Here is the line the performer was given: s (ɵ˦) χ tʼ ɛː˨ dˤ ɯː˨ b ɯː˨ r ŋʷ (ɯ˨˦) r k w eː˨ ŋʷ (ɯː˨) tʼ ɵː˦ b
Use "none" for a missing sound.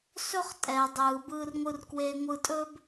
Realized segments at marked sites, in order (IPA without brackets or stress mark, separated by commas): ɵ˦, ɯ˨, ɯ˨